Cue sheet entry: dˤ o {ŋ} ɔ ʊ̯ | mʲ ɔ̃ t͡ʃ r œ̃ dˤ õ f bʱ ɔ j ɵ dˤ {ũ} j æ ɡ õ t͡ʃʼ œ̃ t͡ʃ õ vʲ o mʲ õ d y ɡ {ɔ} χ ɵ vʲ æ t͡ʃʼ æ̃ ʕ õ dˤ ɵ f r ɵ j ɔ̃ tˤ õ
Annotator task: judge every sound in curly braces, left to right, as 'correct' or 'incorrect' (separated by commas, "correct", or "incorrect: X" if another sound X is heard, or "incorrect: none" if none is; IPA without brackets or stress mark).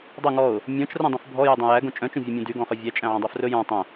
correct, incorrect: õ, incorrect: ɔ̃